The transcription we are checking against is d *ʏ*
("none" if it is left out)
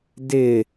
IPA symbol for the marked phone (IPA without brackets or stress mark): ɪ